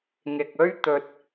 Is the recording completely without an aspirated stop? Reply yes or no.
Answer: yes